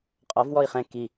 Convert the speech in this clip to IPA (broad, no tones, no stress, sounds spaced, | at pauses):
qʼ ɔ v w ɔ i̯ χ ɛ̃ k i